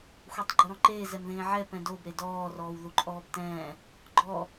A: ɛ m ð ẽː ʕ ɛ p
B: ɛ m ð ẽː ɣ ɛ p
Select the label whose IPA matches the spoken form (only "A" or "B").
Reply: A